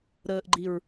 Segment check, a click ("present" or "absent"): present